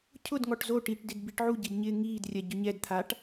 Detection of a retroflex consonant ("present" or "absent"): present